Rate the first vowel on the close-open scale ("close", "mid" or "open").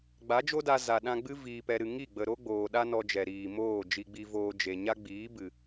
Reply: open